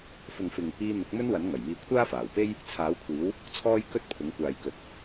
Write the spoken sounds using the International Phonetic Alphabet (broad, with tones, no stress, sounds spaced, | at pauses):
f ʊ˨ ŋ f ɪ˨ ŋ | iː˧ n̪ ʊ˨˥ k̚ m ɵ˥ n w ɐ˨˥ n ŋ ɐ˨˩ j m iː˧ kʷʰ aː˥ f aː˨˩ w p e˥ j | t͡sʰ aː˨˥ w kʷʰ iː˨˥ w | t͡sʰ ɔː˥ j k ɵ˥ t̚ pʰ ʊ˨˥ ŋ kʷ aː˨ j k ɵ˨˥ t̚